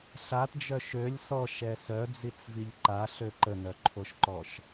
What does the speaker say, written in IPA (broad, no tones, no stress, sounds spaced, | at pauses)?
ɬ a t d͡ʒ œ ʃ ø lʲ s ɔ ʃ ɛ s œ d͡z i t͡s v i ʎ ǃ a ɬ ø ǃ ə n œ ǃʰ o ʃ ǃ ɔ ʃ